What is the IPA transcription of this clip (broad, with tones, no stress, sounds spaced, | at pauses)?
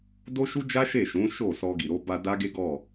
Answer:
d o˦ ʃ u˦ d͡ʒ a˦ ʃ e˦˨ ʃ ũ˨˦ ʃ o˦˨ s ɔ˧ ɡ i˨ ɾ o˧ b a˧ d a˦ ɡ e˦ ɡ ɔ˦˨